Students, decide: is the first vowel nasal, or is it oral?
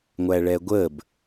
oral